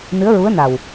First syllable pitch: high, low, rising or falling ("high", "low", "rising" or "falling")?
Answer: rising